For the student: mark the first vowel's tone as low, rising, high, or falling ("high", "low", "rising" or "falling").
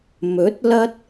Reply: rising